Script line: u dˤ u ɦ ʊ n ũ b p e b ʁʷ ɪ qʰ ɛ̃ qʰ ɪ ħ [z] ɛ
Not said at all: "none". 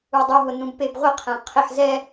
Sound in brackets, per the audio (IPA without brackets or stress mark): z